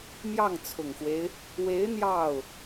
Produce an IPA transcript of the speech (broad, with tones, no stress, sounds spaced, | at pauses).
m j ɑ˥˩ ŋ t͡sʰ ʊ˨˩ ŋ x w e˦ ɪ̯ | w e˧˥ ɪ̯ n̪ j ɑ˥˩ ʊ̯